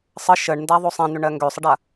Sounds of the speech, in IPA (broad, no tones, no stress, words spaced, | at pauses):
sˤə ʃəɳndaðˤo sˤɛ̃n̪ʏɳɜ ŋɡøsˤəɖa